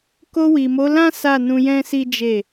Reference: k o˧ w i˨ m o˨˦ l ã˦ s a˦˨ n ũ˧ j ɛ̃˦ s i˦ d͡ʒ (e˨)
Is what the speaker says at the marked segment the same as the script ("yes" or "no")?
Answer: no